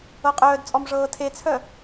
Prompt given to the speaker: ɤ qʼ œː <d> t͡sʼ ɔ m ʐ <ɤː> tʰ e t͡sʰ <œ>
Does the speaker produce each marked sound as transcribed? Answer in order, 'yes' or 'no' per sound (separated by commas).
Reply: yes, yes, yes